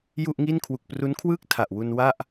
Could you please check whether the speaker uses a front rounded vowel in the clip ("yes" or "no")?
no